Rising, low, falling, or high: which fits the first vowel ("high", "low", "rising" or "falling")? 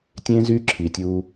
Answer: high